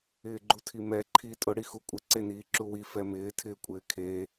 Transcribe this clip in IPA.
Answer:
ɪː ɡ͡ǃ u tʰ i m ɛ ǃʰ iː tʼ ʊ ɽ i x u kʷʼ ɪ ǀ e n iː ǁ u w i f ɛ m ɪː tʰ ɪː kʷʼ ɪː kʰ e

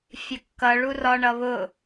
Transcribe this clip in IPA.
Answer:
fʲ ə kː ʌ ɭ u r ɒ ɳ ʌ β ʊ

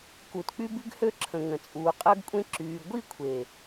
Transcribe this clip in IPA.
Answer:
k u˨ t k͡p y˦ b y˦ ɡ h ø˦ ǁʰ ə̃˨ ŋ ə̃˨ t͡sʼ uː˨ qʼ əː˦ ɡ kʷʼ ẽ˦ ǁ yː˨ ɡʷ i˦˨ kʷʰ e˨

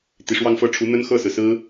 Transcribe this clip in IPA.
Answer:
t̪ i˨˩ ʂ w ɑ˥˧ ŋ f ɤ˥˩ ʈ͡ʂʰ u˧˥ n̪ ə˥ n x ɤ˥˩ s ɹ̩˩ s ɹ̩˥

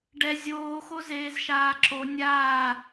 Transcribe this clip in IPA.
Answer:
ɖ ɛ zʲ oː x o z eː z ʃ aː ǁ o nʲ aː

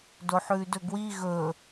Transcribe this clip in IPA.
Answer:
d o ħ ʉː d ɵ ɡ w i ɣ ɵ

